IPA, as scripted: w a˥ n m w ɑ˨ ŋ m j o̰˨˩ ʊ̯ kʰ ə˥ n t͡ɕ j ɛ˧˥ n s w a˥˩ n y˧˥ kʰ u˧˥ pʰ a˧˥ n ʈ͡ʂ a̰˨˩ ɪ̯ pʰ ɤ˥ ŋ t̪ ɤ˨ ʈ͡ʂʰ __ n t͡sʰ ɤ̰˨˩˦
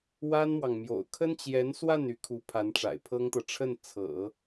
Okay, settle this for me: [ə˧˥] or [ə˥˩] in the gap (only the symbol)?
ə˥˩